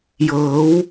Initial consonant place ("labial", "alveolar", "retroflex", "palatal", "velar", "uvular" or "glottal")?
palatal